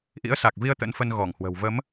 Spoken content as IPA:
ʔ ḭ˧˥ ə̯ s a˨˩ k̚ v i˧ ə̯ t̪ ə̰˧˥ n f ə˧ n ɣ ɔ˧˩ ŋ h w ə̤˨˩ w v ə˨˦ m

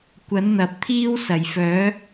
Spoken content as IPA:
kʷ ɐ˨˥ n n̪ ɐ˨ p̚ t̪ʰ iː˥ w s ɐ˨˩ j f œː˨˥

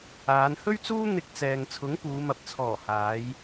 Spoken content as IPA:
aː˨˧ n h ɵ˥ ɥ t͡s uː˥ n̪ ɪ˧ k̚ t͡s ɛː˨ ŋ t͡sʰ ʊ˨˥ ŋ p uː˨˧ m ɐ˨ p̚ t͡sʰ ɔː˨˩ h aː˨˧ j

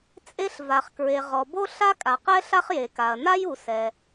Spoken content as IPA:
t͡sʼ e˥ ɬ v a˩ χ k ɹ e˩ ʁ ɔ˩ b o˥ ɬ a˥ kʼ a˩ q ɛ˥ ɬ a˥ χ j e˩ k a˩ ɐ̯ n a˥ j u˩ s ɛ˩

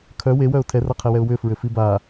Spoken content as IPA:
kʰ œ w e w œ ʊ̯ tʰ ɛ r a qʰ ɛ w ɛ ʊ̯ w ʏ f ɹ ʏ f i b a

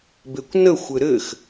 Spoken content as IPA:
b e kʷ n ə xʷ ɘ ɾ ɘ x

